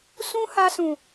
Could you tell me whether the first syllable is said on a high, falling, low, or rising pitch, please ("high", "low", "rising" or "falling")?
high